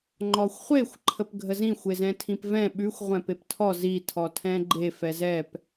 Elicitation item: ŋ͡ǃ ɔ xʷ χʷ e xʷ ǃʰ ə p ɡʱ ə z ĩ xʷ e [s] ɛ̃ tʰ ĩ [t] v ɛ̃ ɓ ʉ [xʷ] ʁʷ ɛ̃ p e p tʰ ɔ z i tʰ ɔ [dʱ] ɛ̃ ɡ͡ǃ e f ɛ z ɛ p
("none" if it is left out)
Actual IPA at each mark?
z, p, xʷ, tʰ

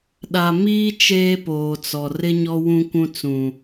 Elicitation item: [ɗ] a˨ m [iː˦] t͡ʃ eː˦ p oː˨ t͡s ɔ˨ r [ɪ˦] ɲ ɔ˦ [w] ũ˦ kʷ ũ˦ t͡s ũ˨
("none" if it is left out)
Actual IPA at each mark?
ɗ, iː˦, ɪ˦, w

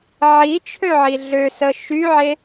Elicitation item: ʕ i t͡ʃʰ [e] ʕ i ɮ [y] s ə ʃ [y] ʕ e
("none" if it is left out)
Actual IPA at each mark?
ø, ø, y

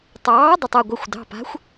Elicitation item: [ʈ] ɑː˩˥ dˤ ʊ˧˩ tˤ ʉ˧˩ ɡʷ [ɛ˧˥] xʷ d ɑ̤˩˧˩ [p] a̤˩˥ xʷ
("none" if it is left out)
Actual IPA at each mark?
tˤ, ɛ˩˧˩, p

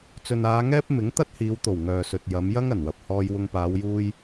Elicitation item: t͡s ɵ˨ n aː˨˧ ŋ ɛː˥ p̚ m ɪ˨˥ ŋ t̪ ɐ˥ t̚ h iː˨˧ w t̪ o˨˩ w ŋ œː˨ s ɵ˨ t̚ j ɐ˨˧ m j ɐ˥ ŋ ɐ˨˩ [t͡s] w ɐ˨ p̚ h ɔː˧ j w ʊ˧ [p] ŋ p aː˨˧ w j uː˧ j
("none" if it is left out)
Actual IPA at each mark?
n, none

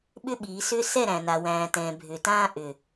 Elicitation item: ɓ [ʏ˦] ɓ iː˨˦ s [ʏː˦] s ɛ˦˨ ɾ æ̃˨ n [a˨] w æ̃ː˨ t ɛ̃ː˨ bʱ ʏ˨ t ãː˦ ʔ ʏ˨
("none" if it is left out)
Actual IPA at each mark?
ʏ˦, ʏː˦, a˨

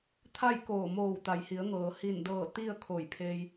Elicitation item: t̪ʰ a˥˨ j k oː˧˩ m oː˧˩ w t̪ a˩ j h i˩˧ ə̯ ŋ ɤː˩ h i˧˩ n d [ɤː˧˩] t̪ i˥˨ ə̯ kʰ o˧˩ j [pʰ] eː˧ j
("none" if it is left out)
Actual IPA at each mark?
ɤː˧˩, pʰ

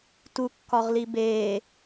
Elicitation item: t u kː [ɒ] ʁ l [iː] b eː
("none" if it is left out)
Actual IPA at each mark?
ɒ, i

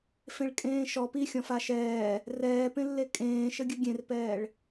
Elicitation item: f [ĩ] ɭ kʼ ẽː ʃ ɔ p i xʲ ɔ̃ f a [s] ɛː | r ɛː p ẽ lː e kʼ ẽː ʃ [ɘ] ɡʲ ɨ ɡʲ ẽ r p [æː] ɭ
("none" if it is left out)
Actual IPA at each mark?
ẽ, ʃ, ɘ, ɛː

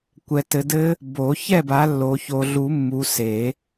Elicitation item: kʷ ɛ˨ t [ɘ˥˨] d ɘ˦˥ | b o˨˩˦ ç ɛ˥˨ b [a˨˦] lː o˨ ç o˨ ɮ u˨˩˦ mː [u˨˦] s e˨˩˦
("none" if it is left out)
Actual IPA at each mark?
ɘ˨˦, a˨˦, u˨˦

